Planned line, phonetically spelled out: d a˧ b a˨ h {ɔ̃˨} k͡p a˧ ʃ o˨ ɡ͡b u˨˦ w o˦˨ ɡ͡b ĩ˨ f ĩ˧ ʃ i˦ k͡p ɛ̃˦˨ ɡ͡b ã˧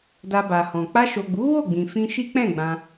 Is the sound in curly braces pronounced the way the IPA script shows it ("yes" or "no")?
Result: yes